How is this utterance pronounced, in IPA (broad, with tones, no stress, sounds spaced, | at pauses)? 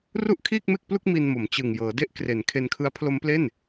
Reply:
r u˥˩ ʔ kʰ iː˥˩ k̚ m e˥˩ k̚ p l u˥˩ k̚ m i˧ n m o˩˦ m t͡ɕ ɯ˨˩ ŋ j ɤː˩˦ d e˥˩ ʔ k r e˩˦ n kʰ e˧ n kʰ ɯ˦˥ a̯ pʰ l o˦˥ m p l e˥˩ n